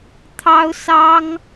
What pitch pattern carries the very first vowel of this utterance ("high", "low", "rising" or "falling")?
high